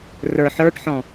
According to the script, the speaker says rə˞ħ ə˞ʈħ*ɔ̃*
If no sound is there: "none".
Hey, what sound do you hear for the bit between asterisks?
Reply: ɔ̃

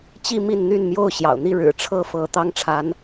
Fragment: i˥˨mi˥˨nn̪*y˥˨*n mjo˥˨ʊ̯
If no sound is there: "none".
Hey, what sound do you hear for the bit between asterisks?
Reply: y˥˨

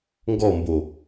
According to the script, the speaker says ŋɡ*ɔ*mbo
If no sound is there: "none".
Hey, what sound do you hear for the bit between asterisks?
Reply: ɔ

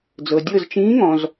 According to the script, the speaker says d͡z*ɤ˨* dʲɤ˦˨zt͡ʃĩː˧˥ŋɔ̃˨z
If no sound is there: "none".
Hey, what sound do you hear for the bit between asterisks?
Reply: ɤ˨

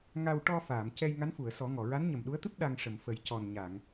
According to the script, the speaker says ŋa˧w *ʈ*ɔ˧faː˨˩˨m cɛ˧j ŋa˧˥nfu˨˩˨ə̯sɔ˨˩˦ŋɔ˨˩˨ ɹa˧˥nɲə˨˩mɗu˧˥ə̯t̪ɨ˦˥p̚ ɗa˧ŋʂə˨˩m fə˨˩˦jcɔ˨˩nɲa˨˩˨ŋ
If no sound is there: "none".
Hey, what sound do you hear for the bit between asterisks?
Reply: ʈ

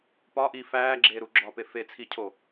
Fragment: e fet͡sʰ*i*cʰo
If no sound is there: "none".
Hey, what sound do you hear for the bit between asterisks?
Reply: i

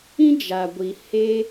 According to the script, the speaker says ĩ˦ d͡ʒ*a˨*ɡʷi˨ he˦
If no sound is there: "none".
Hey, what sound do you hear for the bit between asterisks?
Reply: a˨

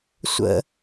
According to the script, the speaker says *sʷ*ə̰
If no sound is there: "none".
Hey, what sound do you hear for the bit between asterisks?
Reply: sʷ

